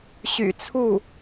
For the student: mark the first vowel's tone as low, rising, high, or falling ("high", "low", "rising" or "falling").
low